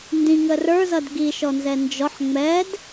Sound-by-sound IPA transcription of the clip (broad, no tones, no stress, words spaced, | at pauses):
ndĩŋə rə˞zʌd ɡiʃɔnzɛ nd͡ʒɔħ ŋ͡mɛd